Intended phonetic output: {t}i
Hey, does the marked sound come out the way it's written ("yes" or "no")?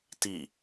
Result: yes